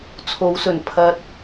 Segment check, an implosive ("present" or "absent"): absent